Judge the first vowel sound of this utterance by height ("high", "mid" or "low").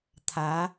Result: low